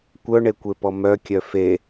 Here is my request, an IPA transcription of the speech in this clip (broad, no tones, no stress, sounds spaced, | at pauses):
kʷ œ ɳ e kʷ e p ɔ m œ kʲ œ f e